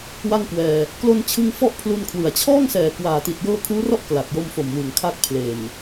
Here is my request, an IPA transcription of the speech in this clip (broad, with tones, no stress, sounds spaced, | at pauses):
w a˥˩ ŋ k w ɛː˧ | k l o˧ n t͡ɕʰ ɯ˧ ŋ f ɔ˦˥ ʔ pʰ l u˧ n kʰ w ɯ˨˩ a̯ t͡ɕʰ ɔː˥˩ ŋ s ɛː˨˩ k w aː˨˩ t i˨˩ t̚ j ɤː˧ kʰ uː˦˥ r ɔ˥˩ ʔ k l a˨˩ t̚ j o˧ m f o˨˩ m w ɯ˩˦ ŋ kʰ a˦˥ k̚ pʰ l e˨˩ n